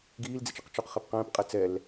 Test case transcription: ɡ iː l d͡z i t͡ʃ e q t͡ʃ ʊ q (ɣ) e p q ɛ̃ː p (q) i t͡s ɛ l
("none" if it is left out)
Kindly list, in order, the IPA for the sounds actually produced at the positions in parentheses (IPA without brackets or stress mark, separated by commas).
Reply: χ, qʼ